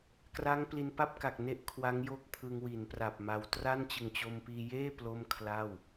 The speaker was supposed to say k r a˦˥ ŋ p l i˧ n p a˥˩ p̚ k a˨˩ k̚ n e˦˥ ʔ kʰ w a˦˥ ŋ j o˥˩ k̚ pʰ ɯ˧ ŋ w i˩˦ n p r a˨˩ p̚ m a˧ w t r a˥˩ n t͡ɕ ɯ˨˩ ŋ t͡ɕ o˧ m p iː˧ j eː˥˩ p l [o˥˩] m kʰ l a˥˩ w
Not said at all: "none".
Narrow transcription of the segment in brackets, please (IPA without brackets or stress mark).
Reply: o˥˩